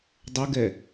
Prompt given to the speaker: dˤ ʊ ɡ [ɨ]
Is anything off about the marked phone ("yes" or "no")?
yes